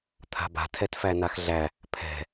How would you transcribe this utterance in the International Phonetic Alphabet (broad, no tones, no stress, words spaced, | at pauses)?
t̪ʰa̤ba̤ tʰɛtfænaxɮæ | pʰɛ̤